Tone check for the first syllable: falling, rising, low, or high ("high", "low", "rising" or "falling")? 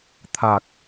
low